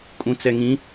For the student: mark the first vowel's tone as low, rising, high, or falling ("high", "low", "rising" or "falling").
low